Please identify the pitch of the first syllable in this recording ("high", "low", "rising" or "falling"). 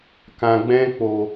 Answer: low